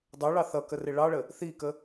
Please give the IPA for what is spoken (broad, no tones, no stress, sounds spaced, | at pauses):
dˤ ə˞ ɭ ɑ θ ʌ k ə r ɪ ɭ ɑ ɭ ə | θ i k ə